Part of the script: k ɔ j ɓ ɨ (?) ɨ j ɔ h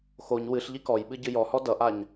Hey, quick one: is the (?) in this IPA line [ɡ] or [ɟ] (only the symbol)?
ɟ